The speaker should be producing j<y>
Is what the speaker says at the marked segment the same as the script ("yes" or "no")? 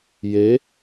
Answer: no